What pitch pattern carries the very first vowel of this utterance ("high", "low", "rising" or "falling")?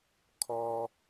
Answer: low